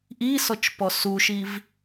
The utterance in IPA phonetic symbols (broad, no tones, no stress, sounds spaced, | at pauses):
ʔ i s ɔ t͡ʃ p ɔ s u ʃ i v